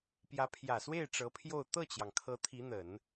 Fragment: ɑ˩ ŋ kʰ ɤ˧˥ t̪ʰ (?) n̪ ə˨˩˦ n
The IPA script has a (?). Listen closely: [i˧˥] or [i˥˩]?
i˧˥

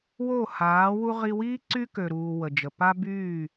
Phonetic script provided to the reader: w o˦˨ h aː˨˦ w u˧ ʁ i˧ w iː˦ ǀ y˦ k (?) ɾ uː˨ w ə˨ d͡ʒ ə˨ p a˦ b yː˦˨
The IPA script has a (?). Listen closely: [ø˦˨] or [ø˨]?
ø˨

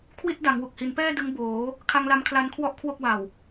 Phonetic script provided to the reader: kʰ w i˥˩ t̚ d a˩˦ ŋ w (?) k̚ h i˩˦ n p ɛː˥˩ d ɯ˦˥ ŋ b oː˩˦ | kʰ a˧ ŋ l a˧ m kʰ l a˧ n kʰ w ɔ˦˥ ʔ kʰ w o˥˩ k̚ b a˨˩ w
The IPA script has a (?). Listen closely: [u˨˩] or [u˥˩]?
u˨˩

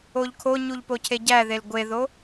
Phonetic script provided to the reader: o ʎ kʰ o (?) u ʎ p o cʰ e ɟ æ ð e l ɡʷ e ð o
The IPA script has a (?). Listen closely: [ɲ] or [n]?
ɲ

